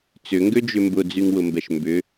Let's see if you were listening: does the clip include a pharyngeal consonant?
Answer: no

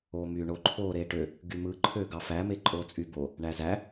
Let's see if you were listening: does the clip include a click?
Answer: yes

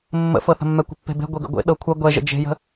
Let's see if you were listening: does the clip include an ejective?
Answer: no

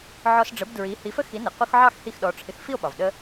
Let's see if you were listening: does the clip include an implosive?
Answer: yes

